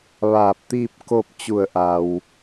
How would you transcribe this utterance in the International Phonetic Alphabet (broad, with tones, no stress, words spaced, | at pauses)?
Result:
ʋaː˧˩p̚t̪iː˥˨p̚ ko˥˨p̚ t͡ɕu˧˩ə̯ʔa˩w